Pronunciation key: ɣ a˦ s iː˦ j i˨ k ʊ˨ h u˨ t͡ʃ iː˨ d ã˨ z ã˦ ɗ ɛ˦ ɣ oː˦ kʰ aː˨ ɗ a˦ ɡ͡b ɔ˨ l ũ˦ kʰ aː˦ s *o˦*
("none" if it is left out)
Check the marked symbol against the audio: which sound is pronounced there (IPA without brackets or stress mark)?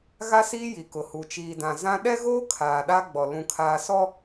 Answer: ɔ˦